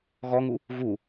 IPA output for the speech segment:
ɣ ɔ ŋ u | ɣ u

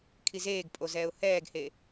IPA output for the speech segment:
kʰ i z eː ɡ pʼ o z ɛː ʊ̯ h ɛː ɡ h e

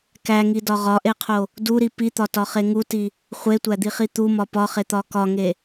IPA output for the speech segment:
k æ ŋ i d ɒ ʁ ɒ ʔ e qʰ o | d u ɾ i p i t̪ ɒ t ɒ χ e ŋ u t i | χʷ e tʷ æ d̪ i χ i t̪ u m ɒ p ɒ χ e t̪ ɒ k ɒ ŋ e

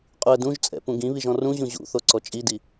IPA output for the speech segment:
qʼ u ə̯ d ũ ʒ t͡sʼ ɛ̰ p ũ ɡ ĩ β i ʒ ɔ̃ r ũ ʑ ũ ʑ ṵ θ o ǀ ɔ t͡ʃʼ i d i

